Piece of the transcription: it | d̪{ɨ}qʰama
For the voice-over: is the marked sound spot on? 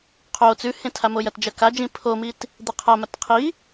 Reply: yes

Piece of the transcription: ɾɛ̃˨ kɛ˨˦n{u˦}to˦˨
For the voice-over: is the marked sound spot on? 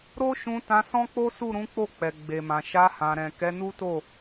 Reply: yes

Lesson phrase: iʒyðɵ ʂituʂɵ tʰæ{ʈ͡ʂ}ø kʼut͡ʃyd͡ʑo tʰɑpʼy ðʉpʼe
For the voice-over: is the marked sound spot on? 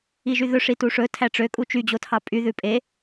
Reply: yes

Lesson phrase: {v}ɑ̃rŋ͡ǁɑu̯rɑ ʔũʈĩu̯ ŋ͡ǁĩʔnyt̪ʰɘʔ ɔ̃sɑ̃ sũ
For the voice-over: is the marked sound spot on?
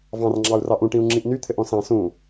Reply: yes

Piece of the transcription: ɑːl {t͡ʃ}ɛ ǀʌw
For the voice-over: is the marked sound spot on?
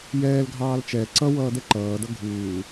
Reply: yes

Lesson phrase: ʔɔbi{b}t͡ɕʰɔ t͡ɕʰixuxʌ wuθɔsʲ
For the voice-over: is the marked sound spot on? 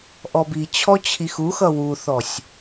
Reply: no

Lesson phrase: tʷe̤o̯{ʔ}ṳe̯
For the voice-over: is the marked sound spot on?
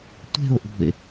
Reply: yes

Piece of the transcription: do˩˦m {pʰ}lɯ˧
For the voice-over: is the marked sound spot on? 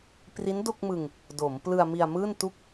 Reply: no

